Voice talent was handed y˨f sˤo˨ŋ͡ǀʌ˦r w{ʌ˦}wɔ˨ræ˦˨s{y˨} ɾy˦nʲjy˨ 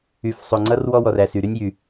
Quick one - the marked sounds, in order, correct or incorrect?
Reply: incorrect: ɔ˦, correct

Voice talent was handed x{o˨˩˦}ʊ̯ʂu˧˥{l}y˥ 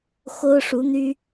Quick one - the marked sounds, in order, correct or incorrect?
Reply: incorrect: o˥, incorrect: n̪

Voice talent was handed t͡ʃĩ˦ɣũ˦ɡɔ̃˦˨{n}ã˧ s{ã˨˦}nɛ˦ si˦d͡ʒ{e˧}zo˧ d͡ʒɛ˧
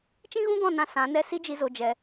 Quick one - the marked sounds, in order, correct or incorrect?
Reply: correct, correct, incorrect: i˧

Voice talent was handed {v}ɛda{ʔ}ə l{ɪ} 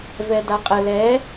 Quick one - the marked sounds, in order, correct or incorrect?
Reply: correct, incorrect: qʼ, incorrect: ɛ

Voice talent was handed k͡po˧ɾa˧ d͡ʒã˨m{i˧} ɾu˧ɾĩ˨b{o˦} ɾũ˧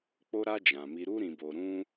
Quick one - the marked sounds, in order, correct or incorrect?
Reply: correct, incorrect: o˨

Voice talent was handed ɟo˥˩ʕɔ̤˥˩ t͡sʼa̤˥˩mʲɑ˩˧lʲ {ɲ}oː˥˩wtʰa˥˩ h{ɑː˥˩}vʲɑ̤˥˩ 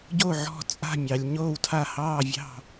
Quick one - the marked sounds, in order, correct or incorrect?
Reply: correct, correct

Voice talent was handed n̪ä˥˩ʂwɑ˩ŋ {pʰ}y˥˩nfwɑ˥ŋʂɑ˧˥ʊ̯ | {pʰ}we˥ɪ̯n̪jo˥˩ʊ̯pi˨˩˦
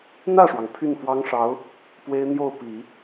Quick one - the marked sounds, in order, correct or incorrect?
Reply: correct, incorrect: p

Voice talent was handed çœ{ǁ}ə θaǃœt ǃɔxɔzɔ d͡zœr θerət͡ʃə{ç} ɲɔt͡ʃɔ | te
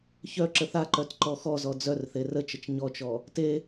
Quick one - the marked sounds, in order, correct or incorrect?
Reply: correct, incorrect: t͡ʃ

